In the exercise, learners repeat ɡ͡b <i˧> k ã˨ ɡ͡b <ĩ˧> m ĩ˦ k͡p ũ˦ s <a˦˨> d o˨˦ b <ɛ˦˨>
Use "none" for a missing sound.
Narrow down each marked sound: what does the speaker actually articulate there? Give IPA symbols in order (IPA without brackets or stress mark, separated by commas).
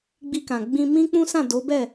i˧, ĩ˧, ã˦˨, ɛ˦˨